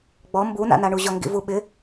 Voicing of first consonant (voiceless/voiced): voiced